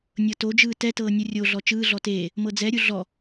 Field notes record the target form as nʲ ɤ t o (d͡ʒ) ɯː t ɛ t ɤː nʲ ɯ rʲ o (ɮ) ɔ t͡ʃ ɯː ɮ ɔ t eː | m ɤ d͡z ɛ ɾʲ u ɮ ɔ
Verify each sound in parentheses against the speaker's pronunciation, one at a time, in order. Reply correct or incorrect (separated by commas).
correct, correct